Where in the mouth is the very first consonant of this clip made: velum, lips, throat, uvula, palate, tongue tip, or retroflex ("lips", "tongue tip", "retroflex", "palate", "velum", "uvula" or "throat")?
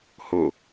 throat